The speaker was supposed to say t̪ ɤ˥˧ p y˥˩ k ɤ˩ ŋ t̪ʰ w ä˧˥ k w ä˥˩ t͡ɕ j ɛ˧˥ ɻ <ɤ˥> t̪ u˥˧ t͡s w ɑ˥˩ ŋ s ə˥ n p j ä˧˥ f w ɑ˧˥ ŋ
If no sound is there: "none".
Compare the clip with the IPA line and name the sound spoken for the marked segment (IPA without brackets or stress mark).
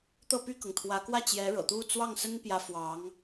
ɤ̰˨˩